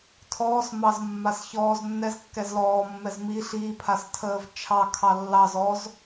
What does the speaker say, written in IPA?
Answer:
tʰɔːsmɑz mːasçɔːznːɛz kːɛzlɔːmːɛz mi ɬiːpʰas tʰəːvt͡ʃʰɑkʰɑ lːɑz ɔz

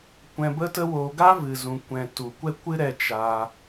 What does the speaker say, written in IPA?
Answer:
kʷɛ̃˧bə˦tə˦woː˧ ɡa˦ vɨ˨zũ˨kʷɛ̃˨ tu˨kʷɛ˦kʷɨ˦ ɾɛ˧t͡ʃa˧

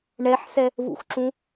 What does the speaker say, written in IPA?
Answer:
ɳɛħsɛ | vṵxǁũ

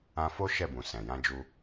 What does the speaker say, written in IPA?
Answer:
ã˧ fo˦ ʃɛ˦˨bũ˨ sɛ̃˨jã˧d͡ʒu˧

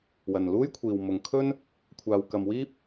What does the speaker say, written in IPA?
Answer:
wɐ˨nluː˥jkʷʰiː˨w mʊ˨ŋkʰɵ˥n | kʷʰaː˨wkɐ˨mwiː˥p̚

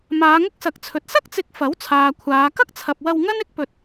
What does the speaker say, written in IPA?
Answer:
maː˨˧ŋʊ˥k̚sɐ˨k̚t͡sʰɵ˨t̚ sɐ˥k̚t͡sɪ˨˥k̚ fɐ˨˥wt͡sʰaː˨ kʷʰaː˨˧ kɐ˥k̚t͡sʰɐ˨p̚ wɐ˧wŋɐ˥n ɪ˥k̚pɵ˧t̚

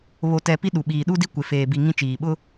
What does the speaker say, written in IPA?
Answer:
βo˨tɛ˨ pi˦ɗu˨ɓiː˨ ɗu˦di˦ kʷe˨ feː˨bi˨ ŋĩ˦t͡ʃiː˨ ɓʊ˦

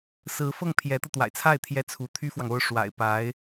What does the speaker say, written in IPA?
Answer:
sɹ̩˧˥fɤ˥˩ŋpʰjɛ˧˥t̪ɤ˧ t̪wa̰˨˩ɪ̯t͡sʰa˥˩ɪ̯ t̪ʰjɛ˥t͡sʰu˧˥ t̪ʰy˥fwɑ˨ŋ o˥ʊ̯ ʂwa̰˨˩ɪ̯ pa˧˥ɪ̯

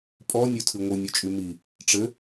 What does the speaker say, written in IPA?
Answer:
pʼɔnʲotʰɨ ŋʷɯnʲot͡ʃʼy mi | ʈ͡ʂɘ

